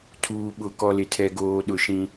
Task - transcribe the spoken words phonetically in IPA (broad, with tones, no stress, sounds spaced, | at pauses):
tʰ uː˨ ɓ ʊ˨ k ɔ˦ l ɪ˦ tʰ ɛ˦ ɡ oː˦ ɗ ʊ˦ ʃ ĩ˦